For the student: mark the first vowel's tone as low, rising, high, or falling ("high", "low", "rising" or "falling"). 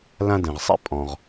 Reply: high